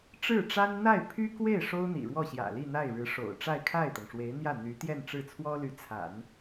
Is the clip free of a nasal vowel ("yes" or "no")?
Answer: yes